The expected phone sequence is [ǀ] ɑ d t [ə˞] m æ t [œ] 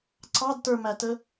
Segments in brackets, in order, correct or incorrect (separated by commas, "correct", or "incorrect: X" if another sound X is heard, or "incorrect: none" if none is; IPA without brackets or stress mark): correct, correct, incorrect: ə